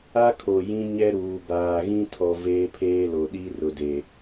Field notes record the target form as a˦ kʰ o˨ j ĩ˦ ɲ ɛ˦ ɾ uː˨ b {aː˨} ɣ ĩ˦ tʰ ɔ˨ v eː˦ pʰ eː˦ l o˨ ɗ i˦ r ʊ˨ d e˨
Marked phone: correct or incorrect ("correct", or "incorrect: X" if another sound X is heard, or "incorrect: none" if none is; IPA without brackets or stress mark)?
correct